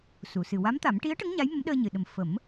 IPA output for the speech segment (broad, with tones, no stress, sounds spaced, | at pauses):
s u˨˩˨ s ɨ˨˩ w a˧˥ m t̪ a˨˩˦ m ʈ i˧˥ ə̯ ʈ ə˧˥ ŋ ɲ a˧˥ j m ə˧˥ m ɗ əː˧ ɲ ɨ˨˩˨ ɗ ə˨˩ m f ə˨˩˦ m